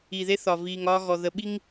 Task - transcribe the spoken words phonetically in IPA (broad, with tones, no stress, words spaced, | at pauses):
i˨ðe˦θɒ˨ viː˨ŋɒː˦ɣɔ˨ ðə˨ɓi˦ŋ